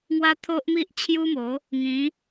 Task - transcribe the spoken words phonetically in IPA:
ŋwa˦t̪ʰo˦ʔmi˦ʔ t͡ɕʰju˦mo˨˦ | ŋĩ˨˦

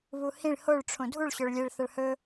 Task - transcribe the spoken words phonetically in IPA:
βuhĩɭ hoɭʈ͡ʂʰõ dʱuɭ ɕɵɭlʲeɭθɐɭ hɵ

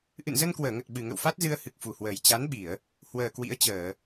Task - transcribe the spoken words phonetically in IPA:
ʔɨ̰˧˨nzə˧nkwəː˧˩ŋə˨˩t̚ ɓɨ˨˩ŋə̰˧˨wfa˦˥t̚zɨ˧ə̯ hɨ˨˩k̚fu˨˩hwəː˨˩j t͡ɕa˨˦nɓi˧˩˨ə̯ | hwəː˨˩kwḭ˧˥ə̯t͡ɕəː˧˩˨

